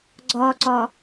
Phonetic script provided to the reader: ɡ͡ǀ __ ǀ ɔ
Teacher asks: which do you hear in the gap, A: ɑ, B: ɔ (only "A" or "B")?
B